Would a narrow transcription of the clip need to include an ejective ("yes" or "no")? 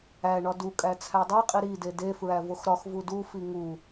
yes